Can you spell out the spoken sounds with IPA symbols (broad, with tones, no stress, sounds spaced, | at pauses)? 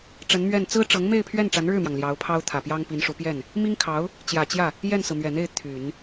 ʈ͡ʂ ə˧˥ n m ɥ ɛ˥˩ n t͡s ɹ̩˥ ʈ͡ʂ ɤ˧˥ ŋ m e˥˧ ɪ̯ pʰ ɥ ɛ˥˩ n ʈ͡ʂ a˧˥ n ɻ ɻ̩˥˩ m j ɑ˩ ŋ l j ɑ˧˥ ʊ̯ pʰ ɑ˥ ʊ̯ t̪ʰ ä˨˩ p j ɑ˥ ŋ p i˧˥ n ʂ u˧˥ p j ɛ˥˩ n | m i˥ ŋ kʰ ɑ˧˥ ʊ̯ | t͡ɕ j ä˨˩ t͡ɕ j ä˥˩ | j ɛ˥˩ n s ɹ̩˩ m ɥ ɛ˨˩ n̪ e˥˩ ɪ̯ t̪ʰ y˨˩˦ n